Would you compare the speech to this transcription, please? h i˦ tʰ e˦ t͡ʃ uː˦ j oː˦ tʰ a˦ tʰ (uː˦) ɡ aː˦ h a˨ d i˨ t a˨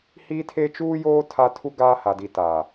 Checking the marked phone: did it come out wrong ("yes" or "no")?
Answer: yes